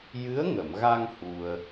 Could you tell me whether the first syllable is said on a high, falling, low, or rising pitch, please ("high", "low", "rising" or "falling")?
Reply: rising